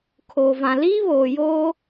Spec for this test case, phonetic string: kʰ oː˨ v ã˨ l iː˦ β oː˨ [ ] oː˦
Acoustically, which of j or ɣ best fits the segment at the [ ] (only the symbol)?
j